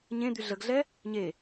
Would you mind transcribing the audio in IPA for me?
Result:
ɲ ẽ d̪ y ɮ ə ɡ ɮ ɛ | ɲ e

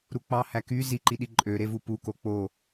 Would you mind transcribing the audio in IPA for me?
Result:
ɾ u k͡p ɑ h æ k y z i ǃ i ɗ i ǃʼ ø ɾ e v u p u k o k͡p o

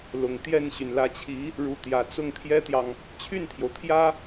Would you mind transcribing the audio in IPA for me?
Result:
l ʊ˨˩ ŋ t̪ j ɛ˥˩ n ɕ y˩ n l ä˧˥ t͡ɕʰ i˧˥ | ɻ u˧˥ t̪ j ä˨˩ t͡s ʊ˥˩ ŋ t̪ʰ j ɛ˥ t̪ j ɑ˨ ŋ | t͡ɕʰ y˥˩ n t̪ʰ j o˩ ʊ̯ t̪ʰ j ä˥

